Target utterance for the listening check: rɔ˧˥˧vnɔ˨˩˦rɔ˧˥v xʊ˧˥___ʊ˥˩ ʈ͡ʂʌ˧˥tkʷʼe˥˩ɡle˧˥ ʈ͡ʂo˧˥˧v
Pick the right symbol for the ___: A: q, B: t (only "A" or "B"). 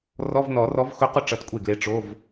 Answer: A